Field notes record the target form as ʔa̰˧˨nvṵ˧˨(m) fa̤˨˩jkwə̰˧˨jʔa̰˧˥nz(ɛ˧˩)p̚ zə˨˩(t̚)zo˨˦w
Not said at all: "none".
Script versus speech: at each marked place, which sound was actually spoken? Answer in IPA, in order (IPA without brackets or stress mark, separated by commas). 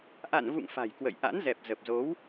ŋ, ɛ˨˩, p̚